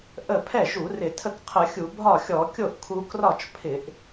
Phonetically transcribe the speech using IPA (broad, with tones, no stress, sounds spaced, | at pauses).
ʔ ə˥˩ pʰ ɛ˥˩ ʒ u˧˩˧ r ɪ˧˩˧ tʰ ə˥˩ k qʰ ə˧˩˧ xʲ u˧˩˧ bʱ ɒ˥˩ xʲ ɔ˧˩˧ kʲ o˥˩ ʔ kʰ u˧ k r ɒ˥˩ t͡ʃ pʰ ɪ˧˩˧ ʔ